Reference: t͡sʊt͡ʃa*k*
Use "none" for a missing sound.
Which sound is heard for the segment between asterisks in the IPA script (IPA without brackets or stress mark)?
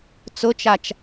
t͡ʃ